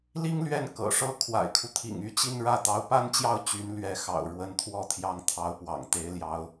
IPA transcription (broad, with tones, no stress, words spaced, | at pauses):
li˥ŋlɥɛ˥˩n kɤ̰˨˩ʂɤ˥˩ kʰwa̰˨˩ɪ̯kʰu˦t̪ʰḭ˨˩ŋ y˥˧t͡ɕi˥˧nɻä˥˩ t̪ɑ˧˥ʊ̯pa˥nt͡ɕjɑ˥˩ʊ̯ t͡ɕy˧˥n lɥɛ˧˥ xɑ̰˨˩ʊ̯ ɻwə˧˥nt̪ʰwɔ˥˩t̪ʰjɑ˧˥ŋ t̪ʰɑ˧˥ʊ̯pwɑ̰˨˩ŋ t̪e˧˥ɪ̯ljɑ˧˥ʊ̯